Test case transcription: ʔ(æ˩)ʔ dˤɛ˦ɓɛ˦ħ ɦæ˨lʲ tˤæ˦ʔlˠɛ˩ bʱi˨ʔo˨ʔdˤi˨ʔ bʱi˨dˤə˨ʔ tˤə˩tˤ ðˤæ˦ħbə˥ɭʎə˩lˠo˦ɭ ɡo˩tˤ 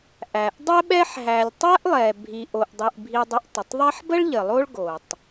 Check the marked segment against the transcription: correct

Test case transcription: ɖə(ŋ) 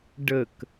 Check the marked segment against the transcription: incorrect: k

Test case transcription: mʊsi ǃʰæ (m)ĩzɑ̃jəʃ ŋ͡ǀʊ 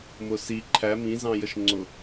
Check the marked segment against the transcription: correct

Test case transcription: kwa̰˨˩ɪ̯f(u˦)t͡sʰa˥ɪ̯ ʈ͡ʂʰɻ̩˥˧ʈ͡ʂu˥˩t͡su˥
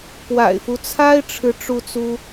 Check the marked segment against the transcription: correct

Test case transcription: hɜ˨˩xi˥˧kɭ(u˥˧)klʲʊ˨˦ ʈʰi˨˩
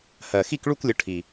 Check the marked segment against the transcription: correct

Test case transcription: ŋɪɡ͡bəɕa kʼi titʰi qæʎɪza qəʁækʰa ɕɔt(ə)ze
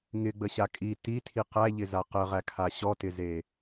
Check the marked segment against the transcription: incorrect: ɪ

